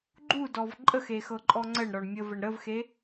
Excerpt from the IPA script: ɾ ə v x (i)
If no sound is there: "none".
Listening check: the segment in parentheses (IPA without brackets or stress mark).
e